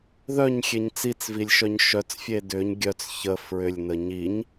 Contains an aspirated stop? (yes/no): no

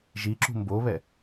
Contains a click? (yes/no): yes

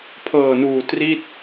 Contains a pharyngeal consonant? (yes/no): no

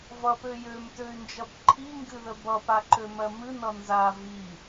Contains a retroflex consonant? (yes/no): no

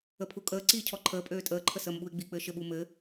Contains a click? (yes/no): yes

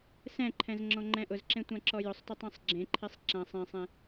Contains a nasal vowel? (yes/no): yes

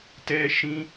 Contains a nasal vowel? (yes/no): yes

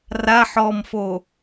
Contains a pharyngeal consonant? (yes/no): yes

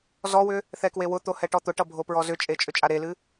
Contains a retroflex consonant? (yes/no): yes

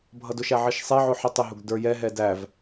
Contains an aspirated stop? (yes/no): no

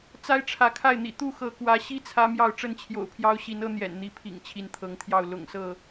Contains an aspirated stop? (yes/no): yes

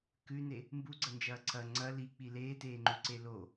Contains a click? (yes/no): yes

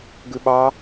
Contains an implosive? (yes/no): yes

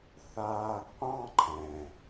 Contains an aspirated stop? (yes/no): yes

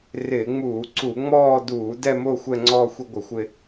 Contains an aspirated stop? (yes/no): no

